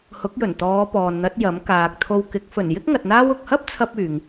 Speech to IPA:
h ʊ˨˥ k̚ j ɵ˨˩ n t̪ ɔː˨˧ p ɔː˨ n n̪ ɐ˨˥ t̚ j ɐ˨˥ m k aː˨ k̚ t̪ʰ o˧ w k ɪ˨˥ k̚ f ɵ˨˩ n j ɪ˥ k̚ ŋ ɐ˧ t̚ n̪ aː˥ w ʊ˨ k̚ h ɐ˥ p̚ t͡sʰ ɐ˧ p̚ yː˨ ŋ

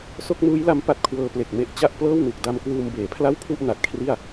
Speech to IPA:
s o˥˩ k̚ n uː˦˥ j l a˦˥ m p a˦˥ t̚ kʰ w ɤː˧ p l e˨˩ k̚ m e˦˥ ʔ t͡ɕ a˥˩ ʔ p l ɤː˥˩ w n u˨˩ k̚ d a˧ m k w uː˧ m b eː˩˦ pʰ l a˥˩ w pʰ u˥˩ ʔ n a˨˩ t̚ kʰ r i˥˩ a̯

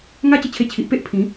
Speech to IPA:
ŋ a˦ t͡ɕ ə˧ t͡ɕʰ e˧ t͡ɕʰ i˨ ʔ p e˦ ʔ pʰ ĩ˨˦

